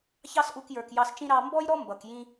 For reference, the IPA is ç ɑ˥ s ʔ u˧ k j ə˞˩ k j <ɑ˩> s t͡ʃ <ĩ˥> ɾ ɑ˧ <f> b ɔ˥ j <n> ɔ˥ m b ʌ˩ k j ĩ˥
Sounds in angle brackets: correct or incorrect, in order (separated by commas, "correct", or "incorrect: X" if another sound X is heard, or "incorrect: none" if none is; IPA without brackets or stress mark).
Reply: incorrect: ɑ˧, correct, incorrect: m, incorrect: ɾ